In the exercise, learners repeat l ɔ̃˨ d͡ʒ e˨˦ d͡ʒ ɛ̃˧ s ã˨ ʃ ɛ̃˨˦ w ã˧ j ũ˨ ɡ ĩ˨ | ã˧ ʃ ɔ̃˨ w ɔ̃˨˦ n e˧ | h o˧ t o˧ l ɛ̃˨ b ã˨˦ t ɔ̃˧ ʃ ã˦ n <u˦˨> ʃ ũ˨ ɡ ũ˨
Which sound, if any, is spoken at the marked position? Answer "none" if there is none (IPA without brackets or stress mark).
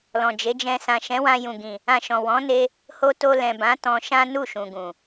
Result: u˦˨